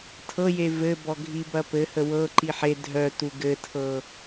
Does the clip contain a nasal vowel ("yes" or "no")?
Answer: no